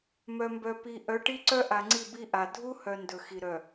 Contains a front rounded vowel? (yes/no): yes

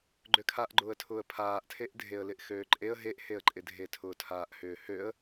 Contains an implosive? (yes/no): no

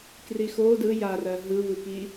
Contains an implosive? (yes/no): no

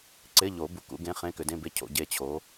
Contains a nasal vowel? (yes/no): yes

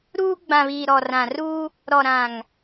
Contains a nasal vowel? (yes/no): yes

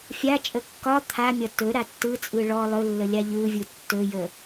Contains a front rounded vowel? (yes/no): no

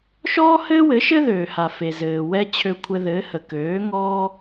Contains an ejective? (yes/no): no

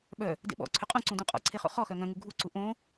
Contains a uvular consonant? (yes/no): yes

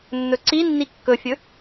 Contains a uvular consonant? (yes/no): no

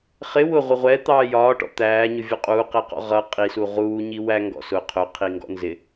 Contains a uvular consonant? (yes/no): yes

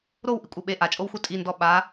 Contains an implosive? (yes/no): yes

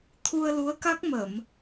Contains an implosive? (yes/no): no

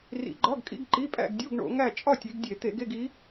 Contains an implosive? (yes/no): no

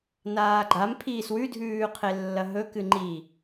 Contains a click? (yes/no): yes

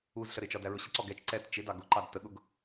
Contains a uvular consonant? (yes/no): no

